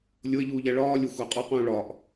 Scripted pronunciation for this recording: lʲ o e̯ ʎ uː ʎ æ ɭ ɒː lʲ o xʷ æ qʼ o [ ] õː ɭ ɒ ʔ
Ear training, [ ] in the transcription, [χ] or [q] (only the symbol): q